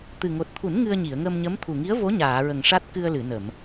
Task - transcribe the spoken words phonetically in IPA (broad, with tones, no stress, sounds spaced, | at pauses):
t̪ ɨ˨˩ ŋ o˨˩ t̚ t̪ʰ u˨˩˦ n ŋ ɨ˧ ə̯ ɲ i˨˩˨ ə̯ ŋ ə˧ m ɲ ə˧˥ m t̪ʰ u˨˩ ŋ i˧˥ ə̯ v o˧˥ ɲ aː˨˩˨ ɹ ə˨˩ ŋ ʂ a˦˥ t̚ k ɨ˧ ə̯ l ɨ˨˩˨ n ə˨˩˨ m